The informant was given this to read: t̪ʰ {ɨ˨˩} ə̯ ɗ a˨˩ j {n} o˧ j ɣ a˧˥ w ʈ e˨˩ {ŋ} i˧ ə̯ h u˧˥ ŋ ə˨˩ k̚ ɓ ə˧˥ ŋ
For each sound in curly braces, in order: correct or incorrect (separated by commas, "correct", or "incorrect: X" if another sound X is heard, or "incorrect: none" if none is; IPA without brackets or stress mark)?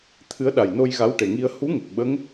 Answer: incorrect: ɨ˧˥, correct, correct